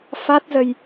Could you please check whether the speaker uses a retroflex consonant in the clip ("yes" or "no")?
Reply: no